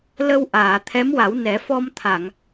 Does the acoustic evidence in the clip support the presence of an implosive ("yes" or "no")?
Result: no